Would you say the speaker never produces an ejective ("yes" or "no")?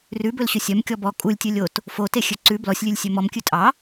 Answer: no